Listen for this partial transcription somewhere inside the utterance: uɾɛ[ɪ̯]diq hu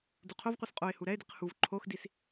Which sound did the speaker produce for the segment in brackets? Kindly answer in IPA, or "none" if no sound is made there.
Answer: ɪ̯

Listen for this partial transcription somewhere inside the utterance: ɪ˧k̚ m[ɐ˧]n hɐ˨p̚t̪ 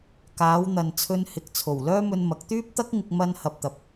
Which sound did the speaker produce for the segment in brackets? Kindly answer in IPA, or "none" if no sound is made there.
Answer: ɐ˧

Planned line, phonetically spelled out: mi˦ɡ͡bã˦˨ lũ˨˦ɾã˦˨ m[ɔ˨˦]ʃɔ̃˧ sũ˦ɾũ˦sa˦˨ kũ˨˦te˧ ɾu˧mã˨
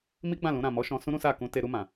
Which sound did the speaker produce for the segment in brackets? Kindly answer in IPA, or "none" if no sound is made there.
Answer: ɔ˨˦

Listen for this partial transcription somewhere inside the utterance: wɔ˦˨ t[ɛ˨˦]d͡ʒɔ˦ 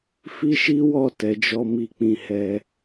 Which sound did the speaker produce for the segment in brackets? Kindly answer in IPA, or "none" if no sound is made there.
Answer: ɛ˨˦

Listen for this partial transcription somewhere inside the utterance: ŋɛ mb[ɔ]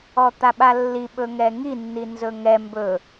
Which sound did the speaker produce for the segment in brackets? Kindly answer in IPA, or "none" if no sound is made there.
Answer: ɵ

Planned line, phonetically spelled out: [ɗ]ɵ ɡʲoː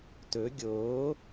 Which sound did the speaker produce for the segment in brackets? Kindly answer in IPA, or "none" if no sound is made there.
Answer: t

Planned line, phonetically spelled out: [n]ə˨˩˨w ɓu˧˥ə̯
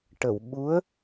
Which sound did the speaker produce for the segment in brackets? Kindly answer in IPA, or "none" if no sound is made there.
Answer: ʈ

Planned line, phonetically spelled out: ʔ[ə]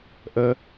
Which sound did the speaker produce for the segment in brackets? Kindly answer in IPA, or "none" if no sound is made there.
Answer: ə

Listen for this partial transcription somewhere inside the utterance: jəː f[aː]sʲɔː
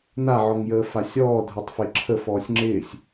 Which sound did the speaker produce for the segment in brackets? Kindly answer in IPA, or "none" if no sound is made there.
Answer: a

